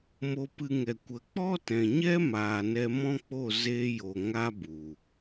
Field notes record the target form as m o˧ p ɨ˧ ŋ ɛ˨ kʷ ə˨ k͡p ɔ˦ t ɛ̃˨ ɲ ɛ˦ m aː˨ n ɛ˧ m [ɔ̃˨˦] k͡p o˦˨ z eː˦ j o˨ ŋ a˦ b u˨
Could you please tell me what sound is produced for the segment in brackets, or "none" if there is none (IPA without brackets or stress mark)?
ɔ̃˦